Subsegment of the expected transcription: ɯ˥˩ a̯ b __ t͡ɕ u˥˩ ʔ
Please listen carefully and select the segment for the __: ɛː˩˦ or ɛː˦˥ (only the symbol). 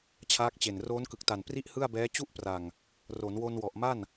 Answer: ɛː˦˥